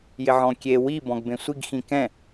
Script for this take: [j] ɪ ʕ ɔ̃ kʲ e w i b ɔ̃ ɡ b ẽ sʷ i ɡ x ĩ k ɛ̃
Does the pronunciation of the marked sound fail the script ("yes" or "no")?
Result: no